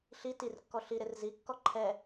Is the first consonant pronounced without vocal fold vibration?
yes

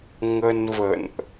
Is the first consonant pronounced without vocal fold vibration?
no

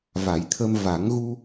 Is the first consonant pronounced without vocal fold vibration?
no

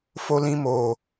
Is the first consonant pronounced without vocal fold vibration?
yes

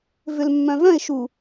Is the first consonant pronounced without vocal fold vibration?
no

